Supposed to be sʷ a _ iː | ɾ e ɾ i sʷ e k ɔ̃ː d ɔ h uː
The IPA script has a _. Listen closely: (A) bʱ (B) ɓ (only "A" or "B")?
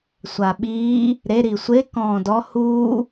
B